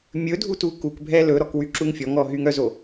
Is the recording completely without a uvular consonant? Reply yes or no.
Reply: yes